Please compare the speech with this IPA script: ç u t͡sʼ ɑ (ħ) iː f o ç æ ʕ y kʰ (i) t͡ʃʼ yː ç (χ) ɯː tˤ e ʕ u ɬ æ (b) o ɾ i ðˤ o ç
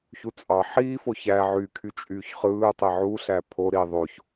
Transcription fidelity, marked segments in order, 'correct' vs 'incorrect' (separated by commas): correct, incorrect, correct, incorrect